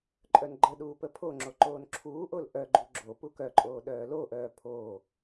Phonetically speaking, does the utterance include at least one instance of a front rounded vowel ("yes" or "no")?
yes